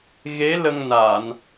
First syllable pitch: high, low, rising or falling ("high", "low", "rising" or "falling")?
rising